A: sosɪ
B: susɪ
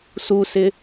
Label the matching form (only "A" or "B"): B